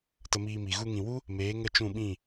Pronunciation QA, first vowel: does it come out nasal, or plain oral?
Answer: oral